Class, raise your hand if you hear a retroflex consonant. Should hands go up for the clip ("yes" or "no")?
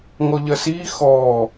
no